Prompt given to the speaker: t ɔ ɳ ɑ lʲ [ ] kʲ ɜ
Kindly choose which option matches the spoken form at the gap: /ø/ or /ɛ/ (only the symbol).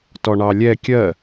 ɛ